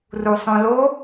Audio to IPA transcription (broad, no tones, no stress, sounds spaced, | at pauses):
r u sˤ õ l o